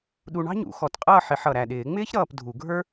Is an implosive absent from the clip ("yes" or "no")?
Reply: no